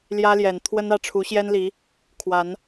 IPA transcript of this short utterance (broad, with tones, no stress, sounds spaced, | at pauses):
l j ä˦ l j ɛ˨˩ n t̪ʰ w ə˦ n ä˥˨ ʈ͡ʂʰ u˨˦ ɕ j ɛ˦ n l i˨˦ | kʰ w a˨˦ n